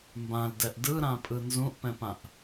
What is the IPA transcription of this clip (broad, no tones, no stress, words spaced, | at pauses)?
mbãldɛʔ dɯɾãpʼɯ nzũʔpɛ̃pãʔ